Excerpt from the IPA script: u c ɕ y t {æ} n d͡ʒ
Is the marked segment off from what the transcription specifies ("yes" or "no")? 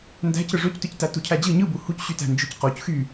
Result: yes